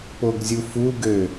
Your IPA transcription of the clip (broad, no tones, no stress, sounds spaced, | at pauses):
p o ɡ zʲ u f u ɡ ø